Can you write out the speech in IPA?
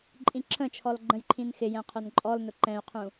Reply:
ǃʼ ĩ ǁʰ ə̃ t͡ʃʰ ɔ l ɡ͡ǃ ə̃ j ǃʰ ĩ n x ɪ j ɛ̃ qʰ ʊ n ǃʼ ɔ l n ʊ ǃ ɛ̃ y̯ qʰ ũ

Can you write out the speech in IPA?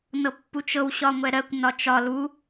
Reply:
n ɤ pː u t͡ʃ ɤ w ɕ ɒ ŋʷ ɛ ɾ ɜ kʷ n ɒ t͡ʃ ɒ l u

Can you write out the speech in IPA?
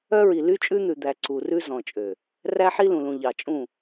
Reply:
œ˦ ɹ i˨ l y˦ t͡ʃʼ ʉ˦ n̪ ʉ˨ d̪ æ˨ ǀ u˨ r ʉ˦ z ɔ̃˨ t͡ʃʼ ø˨ | r æ˦ ħ i˦ l ũ˨ l ũ˨ ʎ ɑ˨ t͡ʃʼ ũ˦˨

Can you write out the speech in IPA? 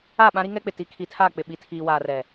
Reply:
a˦˨ ɓ ã˦ ɾ i˦ ŋ ɛ˦ k͡p ɪ˨ t i˨˦ kʰ i˨ tʰ aː˦˨ k͡p ɪ˨ ɓ i˨ tʰ iː˨ w aː˨ r ɛ˨

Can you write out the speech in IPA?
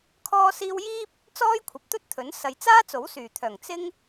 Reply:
kʰ ɔː˥ s iː˥ w j iː˥ p̚ | t͡s ɔː˥ j kʷʰ ɐ˨˥ p̚ t̪ ɵ˥ t̚ t̪ʰ ɵ˨˥ n s ɐ˨ j t͡s aː˥ t͡s o˨˥ w s yː˨˩ t̪ʰ œː˨˩ ŋ t͡s ɪ˥ ŋ

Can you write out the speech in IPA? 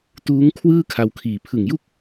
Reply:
t uː˦˥ ŋ kʰ w ɯː˥˩ kʰ a˧ w kʰ iː˨˩ pʰ ɯ˨˩ ŋ j u˥˩ k̚

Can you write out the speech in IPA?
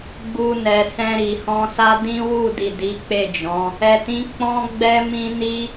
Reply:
ɡ͡b u˧ n ɛ˨ s ɛ̃˧ ɾ i˨ h ɔ̃˧ s a˦ d ĩ˦ w u˦˨ d i˨ d i˨˦ k͡p e˦˨ d͡ʒ ɔ̃˨˦ | ɛ˨ t ĩ˨˦ k͡p ɔ̃˦ ɡ͡b ɛ˦ m ĩ˦ n i˦

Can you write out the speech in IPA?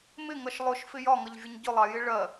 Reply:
m ɪ ŋ ʌ ʃ lˠ ʊ ʃ f ɪ j ɒ ŋ ʌ ʎ vʲ ʊ ɲ ɟ ʊ lˠ ɑ j ɪ ɭ ɜ

